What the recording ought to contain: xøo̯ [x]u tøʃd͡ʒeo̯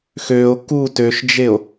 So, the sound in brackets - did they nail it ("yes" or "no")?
no